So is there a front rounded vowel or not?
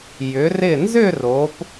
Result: yes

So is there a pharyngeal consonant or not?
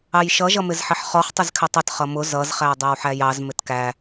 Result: yes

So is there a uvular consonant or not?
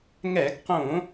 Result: yes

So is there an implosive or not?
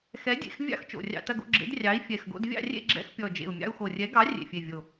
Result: no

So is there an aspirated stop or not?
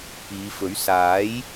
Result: no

